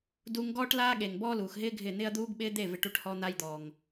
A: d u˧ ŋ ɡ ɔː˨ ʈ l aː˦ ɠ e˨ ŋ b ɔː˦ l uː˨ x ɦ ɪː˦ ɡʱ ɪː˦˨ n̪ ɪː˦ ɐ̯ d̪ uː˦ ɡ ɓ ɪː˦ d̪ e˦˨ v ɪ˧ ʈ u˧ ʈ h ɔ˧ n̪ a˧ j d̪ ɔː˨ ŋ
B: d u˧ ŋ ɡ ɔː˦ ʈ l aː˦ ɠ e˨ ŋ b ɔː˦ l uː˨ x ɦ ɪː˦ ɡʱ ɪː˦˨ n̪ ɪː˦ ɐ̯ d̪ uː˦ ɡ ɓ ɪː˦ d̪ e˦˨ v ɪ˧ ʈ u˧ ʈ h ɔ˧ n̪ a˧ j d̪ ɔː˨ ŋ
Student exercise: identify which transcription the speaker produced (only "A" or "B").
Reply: B